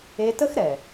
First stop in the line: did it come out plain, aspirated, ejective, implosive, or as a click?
plain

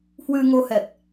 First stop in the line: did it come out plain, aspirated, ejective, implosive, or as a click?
plain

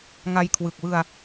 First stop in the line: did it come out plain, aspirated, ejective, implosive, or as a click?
aspirated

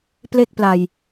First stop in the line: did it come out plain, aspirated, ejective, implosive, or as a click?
plain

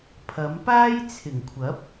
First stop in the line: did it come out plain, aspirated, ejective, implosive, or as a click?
aspirated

